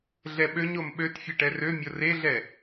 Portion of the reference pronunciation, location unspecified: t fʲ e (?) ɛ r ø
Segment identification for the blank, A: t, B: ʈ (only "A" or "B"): B